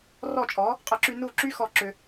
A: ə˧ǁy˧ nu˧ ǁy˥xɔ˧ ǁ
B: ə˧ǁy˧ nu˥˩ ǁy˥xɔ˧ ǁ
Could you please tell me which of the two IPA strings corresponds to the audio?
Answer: B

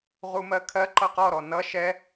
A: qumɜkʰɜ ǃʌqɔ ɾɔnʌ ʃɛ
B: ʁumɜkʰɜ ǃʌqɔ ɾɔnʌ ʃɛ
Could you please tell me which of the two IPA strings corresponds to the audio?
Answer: B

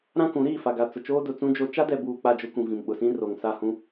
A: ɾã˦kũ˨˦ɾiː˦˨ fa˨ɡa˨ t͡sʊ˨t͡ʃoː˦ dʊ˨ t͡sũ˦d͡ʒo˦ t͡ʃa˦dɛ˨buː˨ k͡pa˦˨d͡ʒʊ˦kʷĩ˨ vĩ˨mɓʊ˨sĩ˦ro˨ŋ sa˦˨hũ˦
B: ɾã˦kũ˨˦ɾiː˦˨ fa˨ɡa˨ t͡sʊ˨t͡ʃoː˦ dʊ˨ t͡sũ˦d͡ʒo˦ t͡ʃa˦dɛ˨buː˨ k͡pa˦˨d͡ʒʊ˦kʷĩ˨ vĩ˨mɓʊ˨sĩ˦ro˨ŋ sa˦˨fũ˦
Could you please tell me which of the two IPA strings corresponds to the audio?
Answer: A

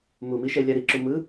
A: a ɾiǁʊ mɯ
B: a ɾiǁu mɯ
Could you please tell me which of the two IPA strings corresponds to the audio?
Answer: B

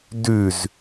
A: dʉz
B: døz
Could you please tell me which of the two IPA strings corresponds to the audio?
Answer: A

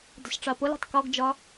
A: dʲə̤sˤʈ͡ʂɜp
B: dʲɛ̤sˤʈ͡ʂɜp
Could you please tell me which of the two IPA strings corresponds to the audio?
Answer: A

